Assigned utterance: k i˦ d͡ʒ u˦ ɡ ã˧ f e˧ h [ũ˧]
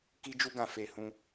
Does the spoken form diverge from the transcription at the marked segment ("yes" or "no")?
no